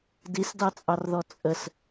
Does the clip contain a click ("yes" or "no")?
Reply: no